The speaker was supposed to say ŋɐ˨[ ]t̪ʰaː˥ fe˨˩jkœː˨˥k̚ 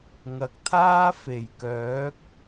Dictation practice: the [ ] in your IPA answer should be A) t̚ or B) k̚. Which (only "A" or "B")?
B